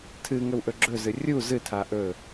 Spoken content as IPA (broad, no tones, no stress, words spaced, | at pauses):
tʰɨ ŋɵwʔɵɡ͡ǁɵzɨ rʲu zɨtʰa ʔɵ